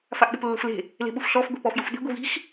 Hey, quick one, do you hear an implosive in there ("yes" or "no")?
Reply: yes